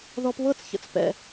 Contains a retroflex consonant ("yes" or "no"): no